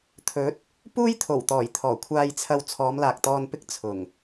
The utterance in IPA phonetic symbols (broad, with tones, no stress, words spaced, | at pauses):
t̪ʰɵ˨˥t̚ | puː˥jt̪ʰo˨˩wt̪ɔː˨˩j t̪ʰɔː˨˩kʷʰaː˧jt͡sʰɐ˧w t͡sʰɔː˨˧mlaː˨k̚t̪ɔː˧n pɪ˥k̚ t͡sʰʊ˨˩ŋ